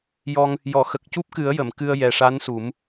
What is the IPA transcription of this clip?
j ɔ˧ ŋ | j ɔ˨˩˨ x ə˨˩ k̚ c u˦˥ p̚ k ɨ˨˩˦ ə̯ j ə˨˩˨ m k ɨ˧ ə̯ j ɛ˨˩ ʂ a˧˥ n s u˨˩˦ m

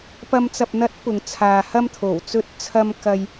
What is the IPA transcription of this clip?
p ɐ˧ m t͡s ɐ˨ p̚ n̪ ɐ˨˥ t̚ p ʊ˨ ŋ t͡sʰ aː˨ h ɐ˧ m t̪ʰ o˨˩ w t͡s ɵ˧ t̚ t͡sʰ ɐ˧ m k ɐ˧ j

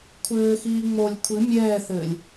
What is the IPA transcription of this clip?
kʷʰ ɘː x iː ŋ͡m o lʲ kʷʰ ɨ mʲ ɛː θ ɘː lʲ

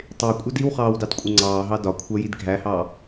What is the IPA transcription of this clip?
tˤ ɪː kʷʼ ʌ d i w χ ɑː w d ɑ t kʷʼ ɪ ŋ͡ǀ ɑː ɦ ɑ d ɒ kʷʰ ɜ j i d ɡʱ æ h ɑː

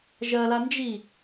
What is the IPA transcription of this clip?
ʒ ɜ l a n d͡ʒ i

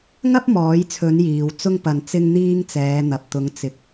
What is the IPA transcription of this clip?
ŋ ɐ˥ p̚ m ɔː˨˧ j t͡sʰ ɵ˨˧ n j iː˧ w t͡s ʊ˥ ŋ p ɐ˨ n t͡s ɪ˥ ŋ n̪ iː˥ ŋ t͡s ɛː˨˧ n̪ ɐ˨ p̚ t̪ ʊ˨˧ ŋ t͡s ɪ˨˥ k̚

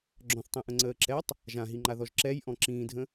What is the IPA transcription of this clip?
ɡ͡ǁ ɔ̃ θ tˤ ĩ ʔ ə̃ ŋ͡ǀ əː ǁ ɛ tˤ | ʒ ã ɦ i ŋ͡ǃ a ð ɔ ʒ ǁ ɛ j ʔ ɔ̃ ǁ ĩː dʱ ə̃

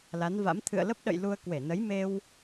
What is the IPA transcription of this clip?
l a˨˦ n v a̰˧˥ m t̪ʰ ɨ̰˧˨ ə̯ l ə˦˥ p̚ ɗ ə̰˧˨ j l u˧ ə̯ k w e˧˩ n ə˨˦ j m e˧ w

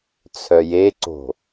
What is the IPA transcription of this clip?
t͡sʰ œ j e ǀ o̤

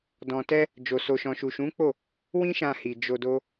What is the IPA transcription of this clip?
d ɔ̃˧ t ɛ˦ | d͡ʒ o˨ s o˨ ʃ ɔ̃˨ ʃ u˨ ʃ ũ˨˦ k͡p o˦˨ | w ĩ˦ ʃ ã˧ h i˨ d͡ʒ o˧ d o˦

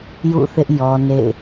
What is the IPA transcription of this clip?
j ṵ˦˨ θ ɪ˦ ʔ j ɔ˦ n ḛ˦˨ ɪ̯

